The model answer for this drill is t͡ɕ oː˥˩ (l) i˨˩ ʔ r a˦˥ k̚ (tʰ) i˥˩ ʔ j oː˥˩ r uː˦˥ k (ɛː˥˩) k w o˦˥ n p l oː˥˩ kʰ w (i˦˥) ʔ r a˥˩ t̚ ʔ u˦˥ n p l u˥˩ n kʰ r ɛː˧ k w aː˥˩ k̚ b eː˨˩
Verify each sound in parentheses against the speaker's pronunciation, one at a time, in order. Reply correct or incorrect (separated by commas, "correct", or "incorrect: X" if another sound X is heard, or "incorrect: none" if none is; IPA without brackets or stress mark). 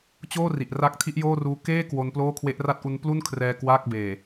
incorrect: r, correct, incorrect: eː˥˩, incorrect: e˦˥